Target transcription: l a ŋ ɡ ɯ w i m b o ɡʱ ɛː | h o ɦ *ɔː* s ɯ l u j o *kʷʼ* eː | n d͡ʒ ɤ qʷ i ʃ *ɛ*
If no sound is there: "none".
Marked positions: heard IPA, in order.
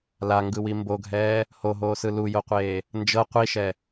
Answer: oː, qʷ, ɛ

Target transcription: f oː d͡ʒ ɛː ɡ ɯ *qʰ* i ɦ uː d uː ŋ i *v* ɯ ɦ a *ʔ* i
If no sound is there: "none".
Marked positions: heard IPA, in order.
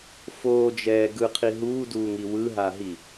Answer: qʰ, w, ɦ

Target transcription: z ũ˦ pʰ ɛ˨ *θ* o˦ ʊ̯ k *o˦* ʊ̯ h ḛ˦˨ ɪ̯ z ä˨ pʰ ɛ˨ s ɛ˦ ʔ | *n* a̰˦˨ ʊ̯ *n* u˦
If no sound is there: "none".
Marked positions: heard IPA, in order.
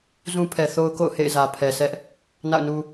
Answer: θ, o̰˦˨, n, n

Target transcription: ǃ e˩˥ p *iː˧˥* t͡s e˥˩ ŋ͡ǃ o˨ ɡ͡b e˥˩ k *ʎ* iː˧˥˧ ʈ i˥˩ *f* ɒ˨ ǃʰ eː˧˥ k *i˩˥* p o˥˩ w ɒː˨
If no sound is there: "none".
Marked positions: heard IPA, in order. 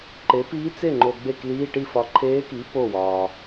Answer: iː˧˥, l, f, i˩˥

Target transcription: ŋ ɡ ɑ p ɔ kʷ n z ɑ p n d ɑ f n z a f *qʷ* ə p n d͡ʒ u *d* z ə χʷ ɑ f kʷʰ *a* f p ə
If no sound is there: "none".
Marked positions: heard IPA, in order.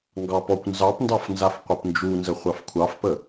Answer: qʷ, n, ɑ

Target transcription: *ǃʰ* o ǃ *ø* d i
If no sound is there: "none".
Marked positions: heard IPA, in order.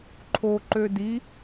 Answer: ǃʰ, ø

